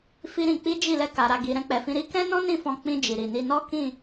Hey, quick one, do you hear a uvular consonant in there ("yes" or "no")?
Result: no